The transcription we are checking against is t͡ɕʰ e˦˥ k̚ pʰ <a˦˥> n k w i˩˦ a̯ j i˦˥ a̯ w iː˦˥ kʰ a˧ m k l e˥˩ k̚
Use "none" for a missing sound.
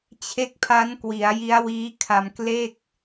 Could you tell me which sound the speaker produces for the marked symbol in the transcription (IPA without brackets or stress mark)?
a˦˥